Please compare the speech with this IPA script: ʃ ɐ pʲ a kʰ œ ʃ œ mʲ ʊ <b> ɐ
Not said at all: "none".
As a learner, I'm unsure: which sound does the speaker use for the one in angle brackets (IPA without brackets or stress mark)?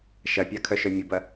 b